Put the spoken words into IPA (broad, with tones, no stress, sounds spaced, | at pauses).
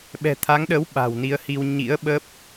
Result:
ɓ ɛ̤˨˩ t̪ʰ a˨˦ ŋ ɗ əː˨˦ w ɓ a̤˨˩ w n i˨˦ ə̯ h i˧ w ɲ ḭ˧˥ ə̯ ɓ ə˦˥ p̚